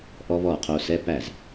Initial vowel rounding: rounded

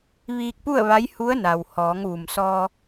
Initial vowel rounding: unrounded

